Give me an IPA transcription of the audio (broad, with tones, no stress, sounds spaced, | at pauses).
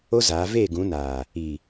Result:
o˦ z aː˨˦ v eː˦˨ ɡ ũ˨˦ n aː˨ | i˨